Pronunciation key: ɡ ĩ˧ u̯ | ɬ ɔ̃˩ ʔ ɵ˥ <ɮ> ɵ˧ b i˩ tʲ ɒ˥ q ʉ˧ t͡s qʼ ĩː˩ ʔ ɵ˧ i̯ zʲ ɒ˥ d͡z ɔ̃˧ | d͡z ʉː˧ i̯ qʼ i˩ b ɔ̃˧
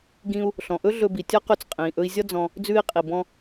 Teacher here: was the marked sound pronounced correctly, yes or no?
yes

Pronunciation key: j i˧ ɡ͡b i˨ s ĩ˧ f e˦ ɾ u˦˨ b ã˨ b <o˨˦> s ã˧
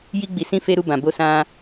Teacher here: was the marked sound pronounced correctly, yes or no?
yes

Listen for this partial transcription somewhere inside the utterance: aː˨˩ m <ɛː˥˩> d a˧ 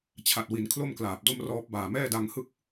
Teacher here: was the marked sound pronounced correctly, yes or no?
yes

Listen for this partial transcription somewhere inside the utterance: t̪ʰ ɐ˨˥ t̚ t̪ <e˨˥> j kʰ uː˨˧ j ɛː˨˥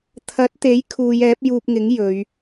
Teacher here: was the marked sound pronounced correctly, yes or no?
yes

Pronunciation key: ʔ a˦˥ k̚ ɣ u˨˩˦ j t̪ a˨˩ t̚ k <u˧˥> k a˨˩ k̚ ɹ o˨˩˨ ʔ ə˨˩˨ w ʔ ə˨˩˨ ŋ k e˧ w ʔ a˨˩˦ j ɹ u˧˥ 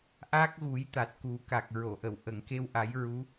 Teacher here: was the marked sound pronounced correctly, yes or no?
no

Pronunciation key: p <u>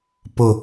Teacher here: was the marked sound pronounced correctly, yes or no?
no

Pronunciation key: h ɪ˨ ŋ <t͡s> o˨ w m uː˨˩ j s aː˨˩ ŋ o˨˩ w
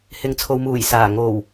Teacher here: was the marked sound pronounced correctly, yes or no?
no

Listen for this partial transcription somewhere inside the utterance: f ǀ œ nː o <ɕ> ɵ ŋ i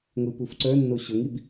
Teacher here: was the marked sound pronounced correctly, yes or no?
yes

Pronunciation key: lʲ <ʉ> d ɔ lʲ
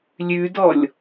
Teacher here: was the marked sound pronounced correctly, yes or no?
yes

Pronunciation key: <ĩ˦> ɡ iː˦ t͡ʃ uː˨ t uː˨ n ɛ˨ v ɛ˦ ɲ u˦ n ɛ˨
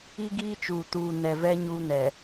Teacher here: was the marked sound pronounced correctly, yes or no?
no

